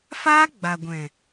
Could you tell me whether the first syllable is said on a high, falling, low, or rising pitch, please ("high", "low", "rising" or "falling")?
high